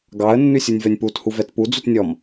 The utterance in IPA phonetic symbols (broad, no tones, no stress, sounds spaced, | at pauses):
ɡ ɑ ə̯ nː ʉ sʲ u nʲ v œ nʲ p u t h u v ɛ t p u d͡z u t nʲ ɔ m